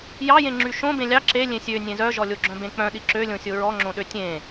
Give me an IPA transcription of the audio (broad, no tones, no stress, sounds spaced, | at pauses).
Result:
j ɑ j ẽ ŋ͡ǁ y ʃ õ b ẽ lʲ ɑ ǁ e lʲ ẽ sʲ ø nʲ ẽ z œ ʒ ɔ lʲ o ɡ͡ǁ œ̃ b ẽ k͡p œ̃ ɗ i ǁ ø lʲ õ sʲ o ɹ ɔ ŋ͡ǁ õ ɗ ø tʲ ẽ